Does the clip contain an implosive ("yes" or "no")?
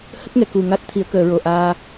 no